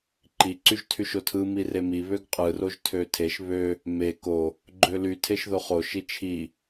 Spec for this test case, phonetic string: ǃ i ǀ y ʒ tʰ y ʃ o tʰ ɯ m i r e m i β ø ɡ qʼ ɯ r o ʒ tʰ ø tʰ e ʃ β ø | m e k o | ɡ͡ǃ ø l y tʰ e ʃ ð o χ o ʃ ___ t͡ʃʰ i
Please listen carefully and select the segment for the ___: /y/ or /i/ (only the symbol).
i